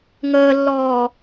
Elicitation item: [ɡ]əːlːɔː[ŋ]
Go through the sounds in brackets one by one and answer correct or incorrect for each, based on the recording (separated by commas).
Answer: incorrect, incorrect